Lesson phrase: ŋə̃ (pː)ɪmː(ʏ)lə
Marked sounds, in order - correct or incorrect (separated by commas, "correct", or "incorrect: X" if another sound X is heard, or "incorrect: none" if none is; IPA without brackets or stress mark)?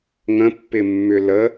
correct, correct